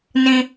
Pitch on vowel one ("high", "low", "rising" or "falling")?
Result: high